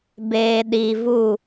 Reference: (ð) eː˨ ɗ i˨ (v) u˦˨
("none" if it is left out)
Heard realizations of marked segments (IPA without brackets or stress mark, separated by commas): b, v